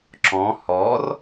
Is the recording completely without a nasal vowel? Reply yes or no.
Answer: no